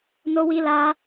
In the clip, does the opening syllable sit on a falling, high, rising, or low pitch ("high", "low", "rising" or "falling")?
high